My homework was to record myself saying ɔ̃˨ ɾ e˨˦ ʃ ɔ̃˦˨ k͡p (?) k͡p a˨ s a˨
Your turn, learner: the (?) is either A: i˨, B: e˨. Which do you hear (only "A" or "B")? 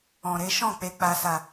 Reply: B